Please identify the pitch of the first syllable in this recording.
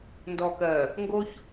low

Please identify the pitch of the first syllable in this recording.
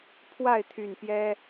falling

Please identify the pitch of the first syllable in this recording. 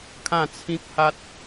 falling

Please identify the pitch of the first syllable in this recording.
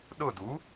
falling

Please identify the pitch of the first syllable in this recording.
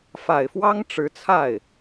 low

